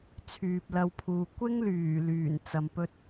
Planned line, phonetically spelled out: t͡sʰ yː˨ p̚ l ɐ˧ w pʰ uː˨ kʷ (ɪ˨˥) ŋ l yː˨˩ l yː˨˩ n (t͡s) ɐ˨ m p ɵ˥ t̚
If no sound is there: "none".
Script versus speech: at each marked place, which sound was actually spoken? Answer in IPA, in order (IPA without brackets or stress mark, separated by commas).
ɪ˥, t͡s